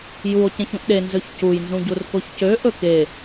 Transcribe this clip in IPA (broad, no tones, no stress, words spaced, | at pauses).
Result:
juo̯ cẽçũʔɗe nzøçcujnzũ ɟurkoçcø ʔɵke